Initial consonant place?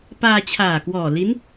labial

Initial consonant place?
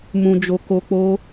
labial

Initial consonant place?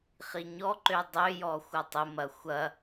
uvular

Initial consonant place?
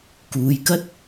velar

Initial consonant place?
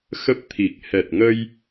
velar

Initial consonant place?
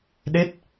alveolar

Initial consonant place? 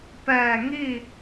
labial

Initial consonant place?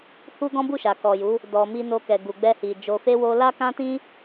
glottal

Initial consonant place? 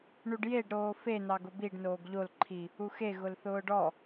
retroflex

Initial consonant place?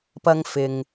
labial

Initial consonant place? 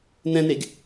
alveolar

